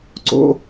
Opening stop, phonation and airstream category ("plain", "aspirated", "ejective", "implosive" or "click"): click